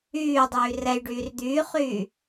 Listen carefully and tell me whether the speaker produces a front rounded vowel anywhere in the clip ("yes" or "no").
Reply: yes